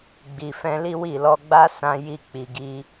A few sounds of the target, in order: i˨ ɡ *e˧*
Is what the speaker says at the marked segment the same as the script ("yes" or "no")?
no